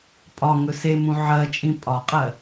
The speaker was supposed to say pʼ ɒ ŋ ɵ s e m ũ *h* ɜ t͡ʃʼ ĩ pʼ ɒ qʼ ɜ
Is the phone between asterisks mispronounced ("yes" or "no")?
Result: yes